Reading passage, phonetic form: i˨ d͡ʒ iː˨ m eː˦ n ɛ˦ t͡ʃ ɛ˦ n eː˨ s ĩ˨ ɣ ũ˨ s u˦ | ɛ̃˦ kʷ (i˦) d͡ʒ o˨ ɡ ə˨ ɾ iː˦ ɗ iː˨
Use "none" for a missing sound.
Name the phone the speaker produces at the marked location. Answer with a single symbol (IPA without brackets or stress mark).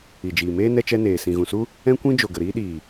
ĩ˦